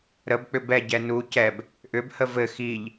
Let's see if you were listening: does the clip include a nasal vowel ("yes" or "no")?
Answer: no